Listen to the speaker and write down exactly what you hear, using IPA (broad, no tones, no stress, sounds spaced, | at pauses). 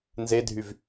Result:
n z e dʱ y v